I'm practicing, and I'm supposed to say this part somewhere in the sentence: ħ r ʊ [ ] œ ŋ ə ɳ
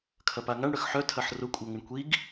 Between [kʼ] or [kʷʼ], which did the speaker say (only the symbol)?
kʷʼ